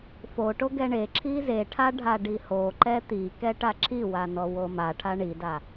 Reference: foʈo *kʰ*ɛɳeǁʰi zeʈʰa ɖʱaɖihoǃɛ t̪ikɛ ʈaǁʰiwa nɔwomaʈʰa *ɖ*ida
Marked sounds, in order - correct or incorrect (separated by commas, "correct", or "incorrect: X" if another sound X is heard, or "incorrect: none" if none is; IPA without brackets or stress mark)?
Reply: incorrect: ɡ, incorrect: ɳ